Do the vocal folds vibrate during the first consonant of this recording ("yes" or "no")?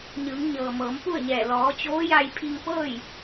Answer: yes